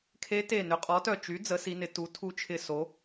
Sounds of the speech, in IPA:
kʰ e˧˥ t e˧˩ n ʏ˩˥ qʼ ɔ˩˥ t œ˧˩ t͡ʃ y˩˥ d͡z ə˩˥ s i˩˧ n ɪ˩˧ t u˩˧ tʰ u˧˥ t͡ʃʰ ɪ˧˩ s o˩˧

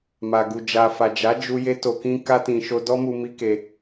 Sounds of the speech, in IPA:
m a˨ ɡ u˨ d͡ʒ a˨ f a˨ d͡ʒ a˨˦ d͡ʒ u˧ j e˧ t o˨ k ĩ˧ k a˧ t ĩ˨ ʃ o˧ d ɔ˦ m u˧ m i˦ k e˧

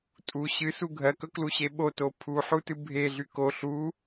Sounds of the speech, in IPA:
tʼ u ɕ ɨ s u ɡʱ ɜ k ɵ k l u ɕ e ɓ o t o pʰ u ħ u t ɨ bʱ e ɮ y k o ɬ u

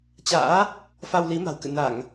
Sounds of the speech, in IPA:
t͡ɕ a̰ː˧˥ | f a˧ w l i˨˦ m a̤˨˩ w k ɨ̰˧˨ n a˧˩˨ ŋ

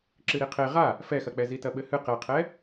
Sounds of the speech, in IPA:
ǁ ɨ ɾ i qʰ e ʁ a | f ɛ x ɐ k͡p ɛ z i t ɐ ɓ ɘ h ɨ q ɛ qʰ ɛ

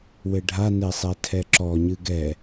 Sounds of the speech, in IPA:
w ɘ ɖʱ a n e sˤ ɛ tʰ ɛ ǁ ɔ ɲ ɨ ɡ ɛ

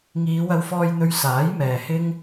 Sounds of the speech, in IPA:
ŋ iː˨˧ w ɐ˧ w f ɔː˧ j n̪ ɵ˧ ɥ s aː˨˥ j m ɛː˨ h ɪ˥ ŋ

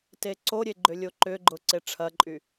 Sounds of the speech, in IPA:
t e ǀ o ɾʲ e ɡ͡ǃ ʏ lʲ o ǃ ʏ ɡ͡ǃ ʊ ǀ e ʈ͡ʂʰ ɐ ǃʼ y

